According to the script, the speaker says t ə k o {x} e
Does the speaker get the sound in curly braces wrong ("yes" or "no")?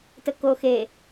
no